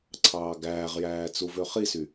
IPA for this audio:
ǀʰ ɑː ɡ æː ʁ j æː t͡s u v ø χ i s y

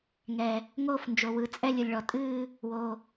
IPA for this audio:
ŋ ɛ˩ | ŋ oː˥˨ f n d͡ʒ o˩ w ɯ˩ t͡sʼ ɛ˥˨ lʲ ɯ˩ lʲ ɭ ɔ˩ tʼ ɨː˥˨ | w o˩

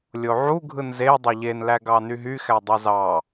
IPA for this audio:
lʲ o ʕ u ɡʱ ɯ n z e dˤ e ʎ e n l æ ɡ ɑ n y ɦ y x æ dˤ e z ɑ

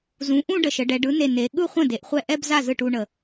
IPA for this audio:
z ũ˩˥ ʔ ũ˥˧ ɖ ə˧˩ ʃ ə˩˧ ɖ ɛ˩˧ ɖ ɯ˩˥ n e˧˩ n e˩˧ ɠ ɯ˥˧ χʷ ə̃˥˩ d e˩˥ ʔ χʷ ɛ˥˩ ʔ ɛ˥˧ b z a˥˩ z ɯ˥˩ ʈ u˥˧ ɳ ə˧˩

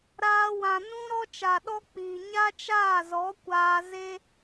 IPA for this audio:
ɾ aː˧ w ã˨ n ũ˦ ɾ ɔ˦ t͡ʃ a˨ ɗ ɔ˦ k͡p iː˨ ɲ a˦ t͡ʃ aː˦˨ z ɔ˨˦ kʷ aː˧ z e˦

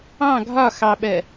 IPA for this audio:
ɑ̃ ɡʱ ɒ x ɑ ɓ ɜ

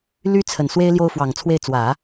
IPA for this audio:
l y˥ t͡sʰ ə˨˩ n s w e˥ ɪ̯ l j o˥ ʊ̯ f w ɑ˨˩ ŋ t͡sʰ w e˥˩ ɪ̯ t͡s w ä˨˩˦

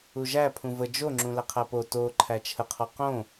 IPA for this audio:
u ʒ æ pʰ ũ v ə d͡ʒ o ŋ͡ǁ ũ l æ qʰ æ p o t o ǃʰ æ t͡ʃʰ ə qʰ ɔ q õ

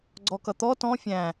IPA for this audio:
ɡ͡ǀ ɔ k ʌ t̪ ɔ t ɔ̃ fʲ æ̃

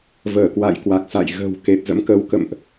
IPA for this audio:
v əː˧˩ k w a̰˧˨ j k w a˨˩ k̚ s a̰˧˨ j ɣ ə̤ː˨˩ w k e˨˩ t̚ z ə̰˧˥ m k ə˨˦ w k ə̰˧˨ m ʔ

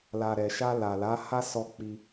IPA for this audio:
l a˨ ɾ ɛ˨ ʃ a˧ l a˨ l a˨˦ h a˦ s ɔ˧ k͡p i˧

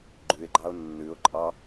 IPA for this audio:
ɡ͡ǃ ʉ ɪ̯ ɡ͡ǃ ɑ ʊ̯ nː ʉ ʊ̯ ǃʼ ɑ

